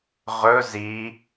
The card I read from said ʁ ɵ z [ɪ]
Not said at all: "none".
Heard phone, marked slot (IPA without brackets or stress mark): i